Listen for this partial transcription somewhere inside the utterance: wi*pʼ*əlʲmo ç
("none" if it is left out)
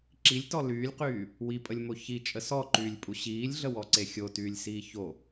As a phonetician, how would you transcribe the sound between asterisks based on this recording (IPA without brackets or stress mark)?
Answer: pʼ